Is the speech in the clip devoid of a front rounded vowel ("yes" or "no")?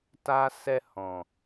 yes